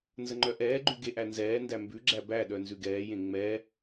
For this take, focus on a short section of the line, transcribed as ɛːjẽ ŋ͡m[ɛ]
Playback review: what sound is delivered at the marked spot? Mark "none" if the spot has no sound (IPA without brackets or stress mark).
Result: ɛ